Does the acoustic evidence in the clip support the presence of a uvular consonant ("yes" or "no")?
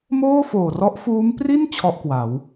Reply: no